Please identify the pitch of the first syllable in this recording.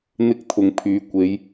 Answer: high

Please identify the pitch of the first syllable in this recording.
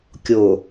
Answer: low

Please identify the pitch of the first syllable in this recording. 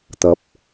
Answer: rising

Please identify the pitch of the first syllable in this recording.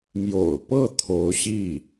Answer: low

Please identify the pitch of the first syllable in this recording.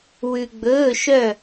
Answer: low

